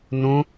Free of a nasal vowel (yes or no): no